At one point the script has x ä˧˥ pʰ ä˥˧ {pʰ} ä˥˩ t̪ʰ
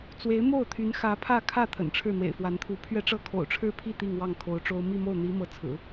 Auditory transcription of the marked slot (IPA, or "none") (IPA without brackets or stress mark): kʰ